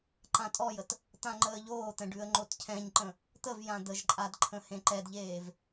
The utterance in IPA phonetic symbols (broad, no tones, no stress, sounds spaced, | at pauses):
ǃ ã tʼ ɔ j ə t | t̪ ã ŋ͡ǃ əː ʎ oː t̪ ɛ̃ ɖ ʉ ə̯ ŋ͡ǃ o t cʰ ɛ̃ ɲ ǃ ə̃ | t̪ ə v j ã d̪ ə ʒ ǃʼ a d ǃʰ ə̃ h ẽ ǃ ɛ d ʎ eː v